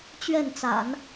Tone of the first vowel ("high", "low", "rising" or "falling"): falling